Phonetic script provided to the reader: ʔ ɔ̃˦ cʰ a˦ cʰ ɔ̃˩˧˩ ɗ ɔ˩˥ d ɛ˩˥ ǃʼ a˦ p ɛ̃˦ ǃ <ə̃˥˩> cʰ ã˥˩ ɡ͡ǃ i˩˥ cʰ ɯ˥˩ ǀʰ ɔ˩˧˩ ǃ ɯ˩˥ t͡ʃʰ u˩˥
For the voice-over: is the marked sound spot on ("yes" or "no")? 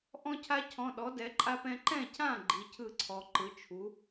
no